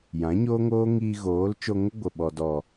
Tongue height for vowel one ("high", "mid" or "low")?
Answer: low